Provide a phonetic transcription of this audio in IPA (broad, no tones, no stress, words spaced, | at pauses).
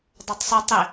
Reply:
dˤotˤsˤu tˤe